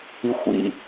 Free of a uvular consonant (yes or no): yes